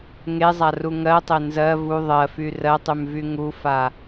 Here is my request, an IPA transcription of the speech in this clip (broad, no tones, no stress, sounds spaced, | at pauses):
ŋ e zˤ a r u ŋ ɜ tˤ e n z ɜ v u ðˤ ɜ f y r ɜ tˤ y m v y ŋ u f a